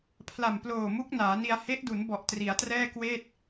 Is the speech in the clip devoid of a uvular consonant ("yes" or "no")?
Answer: yes